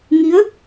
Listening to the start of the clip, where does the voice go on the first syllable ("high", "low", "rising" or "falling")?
rising